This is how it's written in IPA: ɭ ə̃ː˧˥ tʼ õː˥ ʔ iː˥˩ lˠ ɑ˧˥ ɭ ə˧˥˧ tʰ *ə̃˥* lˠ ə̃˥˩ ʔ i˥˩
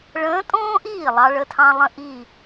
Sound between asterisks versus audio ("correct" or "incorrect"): incorrect